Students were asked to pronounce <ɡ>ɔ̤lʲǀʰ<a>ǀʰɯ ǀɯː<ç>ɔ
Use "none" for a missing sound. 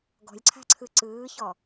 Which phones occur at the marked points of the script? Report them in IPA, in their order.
ɡ, a̤, ç

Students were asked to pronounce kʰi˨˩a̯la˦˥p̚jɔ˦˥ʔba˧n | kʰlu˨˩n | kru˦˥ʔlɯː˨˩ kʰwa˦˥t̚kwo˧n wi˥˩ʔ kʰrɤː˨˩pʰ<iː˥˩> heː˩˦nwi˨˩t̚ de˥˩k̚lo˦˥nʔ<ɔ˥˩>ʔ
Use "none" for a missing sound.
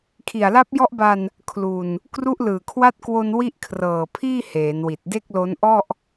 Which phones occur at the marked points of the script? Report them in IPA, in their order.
iː˥˩, ɔ˥˩

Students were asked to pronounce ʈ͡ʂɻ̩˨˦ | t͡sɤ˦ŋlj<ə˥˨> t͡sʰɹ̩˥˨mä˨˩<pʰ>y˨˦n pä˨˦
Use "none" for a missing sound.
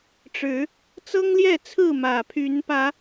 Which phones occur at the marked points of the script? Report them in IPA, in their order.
ɛ˥˨, pʰ

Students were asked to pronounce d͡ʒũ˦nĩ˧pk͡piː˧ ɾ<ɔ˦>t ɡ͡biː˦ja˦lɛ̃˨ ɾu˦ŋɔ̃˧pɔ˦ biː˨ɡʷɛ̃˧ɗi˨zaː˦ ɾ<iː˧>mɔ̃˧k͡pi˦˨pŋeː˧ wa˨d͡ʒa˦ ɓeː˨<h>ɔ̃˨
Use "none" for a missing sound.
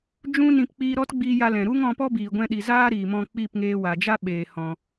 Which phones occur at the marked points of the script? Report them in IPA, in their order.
ɔ˦, iː˨, h

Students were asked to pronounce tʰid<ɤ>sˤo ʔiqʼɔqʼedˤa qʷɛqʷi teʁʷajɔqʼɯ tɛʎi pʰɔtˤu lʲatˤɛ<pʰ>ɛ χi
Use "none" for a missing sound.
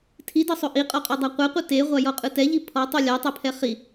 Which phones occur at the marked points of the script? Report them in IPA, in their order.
ɤ, pʰ

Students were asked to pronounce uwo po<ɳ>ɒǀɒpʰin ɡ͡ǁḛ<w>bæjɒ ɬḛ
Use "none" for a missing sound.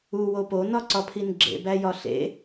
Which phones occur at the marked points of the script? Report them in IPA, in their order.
n, none

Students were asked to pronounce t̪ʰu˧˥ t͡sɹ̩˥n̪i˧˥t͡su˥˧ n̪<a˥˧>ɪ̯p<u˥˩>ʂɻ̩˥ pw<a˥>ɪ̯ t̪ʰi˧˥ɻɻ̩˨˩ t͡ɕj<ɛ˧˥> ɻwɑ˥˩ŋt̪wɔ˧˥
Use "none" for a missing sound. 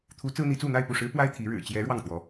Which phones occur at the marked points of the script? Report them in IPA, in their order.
a˥˧, u˥˩, a˥, ɛ˧˥

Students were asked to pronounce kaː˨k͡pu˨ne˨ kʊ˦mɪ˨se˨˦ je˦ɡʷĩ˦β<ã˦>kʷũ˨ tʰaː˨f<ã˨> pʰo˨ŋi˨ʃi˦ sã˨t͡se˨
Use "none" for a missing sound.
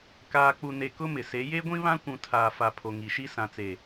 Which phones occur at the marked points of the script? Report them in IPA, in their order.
ã˦, a˨

